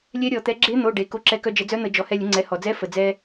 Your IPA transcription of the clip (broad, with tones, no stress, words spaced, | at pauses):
lʲɛ˧˥ɾʲɔ˧˩˧t̪ɛ˩˥ ɡ͡ǁe˧˥n̪o˩˧˩ɖe˩ ko˧ǁɛ˧kœ˧ d͡ʒə˧˩˧d͡zœ˧˥n̪ə˧˩˧ d͡ʒɔ˩˥hɛ˧lʲə˩˥ŋ͡ǀɛ˩˥ hɔ˩d͡zɛ˧˥ fə˩d͡zɛ˧